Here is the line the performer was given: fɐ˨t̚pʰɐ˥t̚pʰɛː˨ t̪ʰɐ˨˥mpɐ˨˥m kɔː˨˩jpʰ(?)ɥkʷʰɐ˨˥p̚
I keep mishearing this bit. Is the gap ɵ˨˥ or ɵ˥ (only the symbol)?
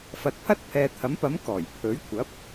ɵ˨˥